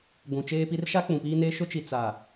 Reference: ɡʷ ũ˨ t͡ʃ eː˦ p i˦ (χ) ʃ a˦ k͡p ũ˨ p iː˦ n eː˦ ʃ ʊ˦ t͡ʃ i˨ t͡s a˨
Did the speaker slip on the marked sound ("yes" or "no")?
yes